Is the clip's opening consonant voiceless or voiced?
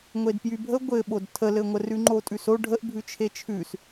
voiced